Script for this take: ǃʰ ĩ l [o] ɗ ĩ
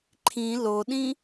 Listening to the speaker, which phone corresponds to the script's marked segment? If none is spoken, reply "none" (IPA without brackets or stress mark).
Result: o